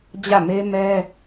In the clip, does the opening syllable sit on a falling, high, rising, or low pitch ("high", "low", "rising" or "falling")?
falling